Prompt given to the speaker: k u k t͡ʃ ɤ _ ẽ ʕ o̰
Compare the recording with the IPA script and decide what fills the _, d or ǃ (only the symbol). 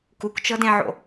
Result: d